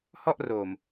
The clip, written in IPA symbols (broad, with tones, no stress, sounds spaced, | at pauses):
h ɔ˥˩ ʔ r oː˨˩ m